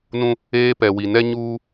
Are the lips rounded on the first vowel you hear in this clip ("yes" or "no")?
yes